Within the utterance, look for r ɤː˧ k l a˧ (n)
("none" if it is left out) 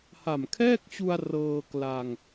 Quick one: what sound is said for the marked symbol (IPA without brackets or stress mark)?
ŋ